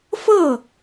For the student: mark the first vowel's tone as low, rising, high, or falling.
falling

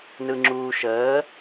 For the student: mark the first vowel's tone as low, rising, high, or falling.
low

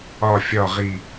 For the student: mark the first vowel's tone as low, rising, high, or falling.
low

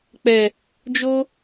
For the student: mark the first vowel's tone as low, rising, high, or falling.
low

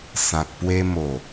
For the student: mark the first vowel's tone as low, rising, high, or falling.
low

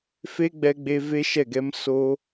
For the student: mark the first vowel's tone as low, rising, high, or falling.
high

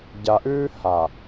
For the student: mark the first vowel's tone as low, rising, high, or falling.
low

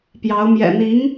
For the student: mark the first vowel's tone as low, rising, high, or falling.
rising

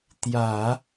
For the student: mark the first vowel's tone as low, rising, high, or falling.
low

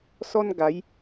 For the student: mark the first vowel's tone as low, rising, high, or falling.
high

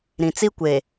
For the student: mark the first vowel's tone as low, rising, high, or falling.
low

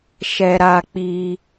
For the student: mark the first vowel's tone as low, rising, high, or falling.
high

